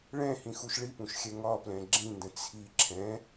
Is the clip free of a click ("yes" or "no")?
no